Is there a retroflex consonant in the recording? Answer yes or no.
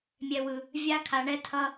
yes